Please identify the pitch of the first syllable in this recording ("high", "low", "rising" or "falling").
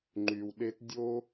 low